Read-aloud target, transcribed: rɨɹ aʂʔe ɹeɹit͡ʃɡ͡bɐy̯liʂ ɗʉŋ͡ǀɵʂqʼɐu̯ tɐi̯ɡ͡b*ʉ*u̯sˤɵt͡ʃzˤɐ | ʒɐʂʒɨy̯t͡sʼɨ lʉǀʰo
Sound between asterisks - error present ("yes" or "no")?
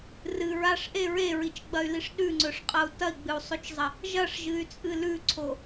yes